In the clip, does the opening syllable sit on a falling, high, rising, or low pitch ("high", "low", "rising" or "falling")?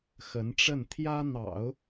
rising